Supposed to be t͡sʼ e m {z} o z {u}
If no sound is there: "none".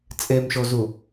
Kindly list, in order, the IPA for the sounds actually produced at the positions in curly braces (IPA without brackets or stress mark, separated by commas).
ʃ, u